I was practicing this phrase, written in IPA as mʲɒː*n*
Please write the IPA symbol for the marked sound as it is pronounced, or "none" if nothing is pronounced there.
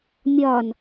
n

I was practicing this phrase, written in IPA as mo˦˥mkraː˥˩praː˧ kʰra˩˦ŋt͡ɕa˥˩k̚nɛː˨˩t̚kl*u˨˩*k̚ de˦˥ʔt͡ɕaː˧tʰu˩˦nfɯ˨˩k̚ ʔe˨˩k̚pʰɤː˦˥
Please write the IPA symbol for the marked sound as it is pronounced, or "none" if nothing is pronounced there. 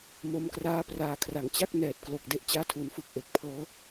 o˨˩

